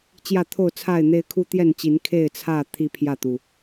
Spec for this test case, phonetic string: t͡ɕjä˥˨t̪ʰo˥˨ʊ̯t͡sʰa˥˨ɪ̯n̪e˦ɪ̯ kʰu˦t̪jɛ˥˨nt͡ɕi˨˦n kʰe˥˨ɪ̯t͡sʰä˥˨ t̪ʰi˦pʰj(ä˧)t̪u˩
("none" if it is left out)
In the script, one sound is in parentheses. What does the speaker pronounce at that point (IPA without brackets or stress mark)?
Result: ä˥˨